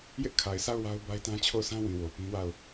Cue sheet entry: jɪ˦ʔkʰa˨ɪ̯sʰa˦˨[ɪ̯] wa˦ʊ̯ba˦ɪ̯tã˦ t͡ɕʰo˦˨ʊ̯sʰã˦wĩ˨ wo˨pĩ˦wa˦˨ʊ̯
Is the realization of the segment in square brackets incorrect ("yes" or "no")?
yes